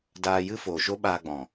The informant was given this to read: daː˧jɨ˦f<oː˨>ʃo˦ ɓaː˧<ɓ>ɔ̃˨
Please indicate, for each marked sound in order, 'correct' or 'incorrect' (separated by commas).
correct, incorrect